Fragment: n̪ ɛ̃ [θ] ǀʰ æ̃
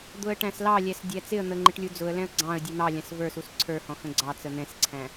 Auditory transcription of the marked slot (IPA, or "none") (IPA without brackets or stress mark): s